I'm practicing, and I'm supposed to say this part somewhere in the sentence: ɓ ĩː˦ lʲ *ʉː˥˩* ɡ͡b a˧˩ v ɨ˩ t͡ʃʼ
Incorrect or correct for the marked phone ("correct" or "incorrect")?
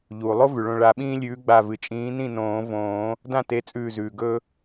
incorrect